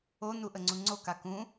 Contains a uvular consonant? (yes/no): no